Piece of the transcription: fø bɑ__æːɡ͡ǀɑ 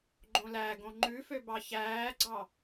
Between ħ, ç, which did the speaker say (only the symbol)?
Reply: ç